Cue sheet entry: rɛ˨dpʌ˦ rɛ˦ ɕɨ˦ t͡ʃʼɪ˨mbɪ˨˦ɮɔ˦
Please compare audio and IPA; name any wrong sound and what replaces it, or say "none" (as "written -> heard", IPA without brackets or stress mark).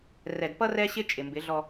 ɨ˦ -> ɪ˦